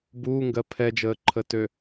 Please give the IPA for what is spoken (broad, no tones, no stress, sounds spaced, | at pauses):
b uː ŋ ɡ ɜ pʰ ɛ d͡ʒ əː ǃʰ ə t ø